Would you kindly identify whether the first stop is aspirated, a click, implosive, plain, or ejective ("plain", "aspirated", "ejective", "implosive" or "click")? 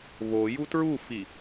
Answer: plain